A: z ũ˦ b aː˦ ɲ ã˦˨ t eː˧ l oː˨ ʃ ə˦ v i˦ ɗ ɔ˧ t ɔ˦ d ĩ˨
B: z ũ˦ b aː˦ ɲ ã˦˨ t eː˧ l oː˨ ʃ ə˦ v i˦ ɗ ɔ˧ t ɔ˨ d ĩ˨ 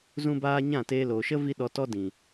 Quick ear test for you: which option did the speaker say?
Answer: A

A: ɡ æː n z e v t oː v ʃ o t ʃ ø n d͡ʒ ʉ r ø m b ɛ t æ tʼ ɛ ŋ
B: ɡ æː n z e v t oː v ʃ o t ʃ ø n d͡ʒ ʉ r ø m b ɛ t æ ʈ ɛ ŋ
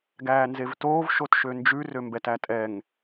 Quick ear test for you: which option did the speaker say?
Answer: A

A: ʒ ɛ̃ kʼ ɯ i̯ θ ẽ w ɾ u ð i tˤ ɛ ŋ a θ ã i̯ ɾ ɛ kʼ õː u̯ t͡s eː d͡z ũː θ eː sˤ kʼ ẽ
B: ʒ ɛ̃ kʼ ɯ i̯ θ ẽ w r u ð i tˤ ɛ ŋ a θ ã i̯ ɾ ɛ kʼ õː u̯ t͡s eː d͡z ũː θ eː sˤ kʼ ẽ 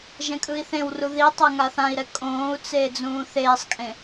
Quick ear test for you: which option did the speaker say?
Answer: B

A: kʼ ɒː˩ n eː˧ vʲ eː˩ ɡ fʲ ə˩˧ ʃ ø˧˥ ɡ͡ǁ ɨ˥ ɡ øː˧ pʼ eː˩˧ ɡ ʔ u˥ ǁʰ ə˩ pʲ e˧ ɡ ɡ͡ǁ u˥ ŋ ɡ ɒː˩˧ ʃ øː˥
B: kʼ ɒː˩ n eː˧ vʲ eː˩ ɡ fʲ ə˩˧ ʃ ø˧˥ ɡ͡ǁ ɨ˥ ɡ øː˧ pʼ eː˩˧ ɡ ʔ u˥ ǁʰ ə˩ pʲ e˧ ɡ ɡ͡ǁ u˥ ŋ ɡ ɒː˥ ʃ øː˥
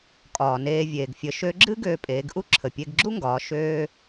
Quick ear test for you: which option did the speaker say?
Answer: A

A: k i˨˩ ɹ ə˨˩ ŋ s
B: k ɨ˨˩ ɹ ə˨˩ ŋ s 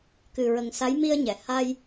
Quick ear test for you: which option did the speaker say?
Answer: B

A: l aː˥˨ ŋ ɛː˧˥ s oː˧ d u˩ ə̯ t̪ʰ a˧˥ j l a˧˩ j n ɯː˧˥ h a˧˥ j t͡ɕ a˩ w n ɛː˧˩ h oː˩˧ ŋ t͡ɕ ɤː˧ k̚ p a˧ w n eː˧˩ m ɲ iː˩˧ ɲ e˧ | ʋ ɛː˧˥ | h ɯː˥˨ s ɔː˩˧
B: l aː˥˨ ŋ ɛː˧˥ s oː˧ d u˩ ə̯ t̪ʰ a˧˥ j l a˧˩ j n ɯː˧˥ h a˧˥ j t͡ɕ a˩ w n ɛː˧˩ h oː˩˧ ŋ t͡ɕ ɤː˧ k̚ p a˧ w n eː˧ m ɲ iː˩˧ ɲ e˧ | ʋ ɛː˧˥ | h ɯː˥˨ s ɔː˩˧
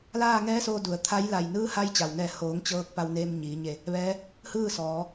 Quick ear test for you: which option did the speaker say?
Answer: B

